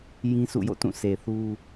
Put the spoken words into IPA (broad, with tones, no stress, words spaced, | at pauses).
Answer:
jĩ˦sʰṵ˦˨jo̰˦˨tũ˦˨ sʰe˨θu˦